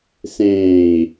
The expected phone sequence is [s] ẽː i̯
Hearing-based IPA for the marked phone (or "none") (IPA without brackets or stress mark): s